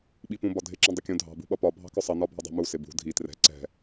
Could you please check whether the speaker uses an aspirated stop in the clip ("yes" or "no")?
no